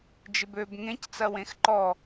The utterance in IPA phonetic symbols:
d͡ʒɪbøb ŋẽc t͡sɐwẽxǃɔ

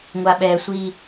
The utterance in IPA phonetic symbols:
ŋʷaɓɛsʷi

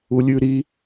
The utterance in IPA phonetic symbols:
ulʲʉɾi

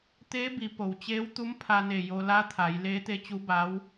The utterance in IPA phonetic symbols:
t̪eː˧˥bi˩˧ po˩wt͡ɕeː˧˥wt̪u˧˥m pʰa˧ne˧˩ jo˧ la˧˥t̪ʰa˩˧j leː˧˥t̪e˧˥t͡ɕu˧˥ba˧˥w

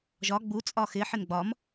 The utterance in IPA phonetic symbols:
ʒɒ ɡ͡bu t͡sʼɒxɪ ħɪnɡ͡bɒm

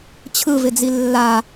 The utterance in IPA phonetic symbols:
t͡ɕʰɯvɪd͡zi lːa

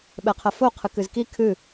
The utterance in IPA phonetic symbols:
ɓɛqʰɐfo qʰɨkɨzki kʰɨ

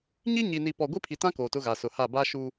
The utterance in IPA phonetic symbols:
ɲi˦ɲi˨ni˨ pɔ˨ɡʷi˦pʰi˨tã˦ koː˨tʊ˦ɣa˨ sʊ˨ha˦˨ ba˦ʃu˦

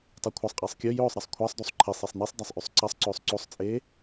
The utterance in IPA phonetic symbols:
tˤɵkʷʰɐsˤqʼeːsˤ kʲɵ jɵːsˤɾɐsˤ kʷʰasˤdosˤ ǃʰisˤesˤ nisˤdasˤ ʔʉsˤǀɐsˤǀɵːsˤ ǀosˤt͡sʼeː

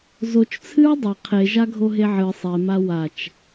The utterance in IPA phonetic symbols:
zot͡ʃt͡sʰɨɹ dˤɐ qʰeʒaɡʱo ɦeʕɨ sˤema wat͡ʃ

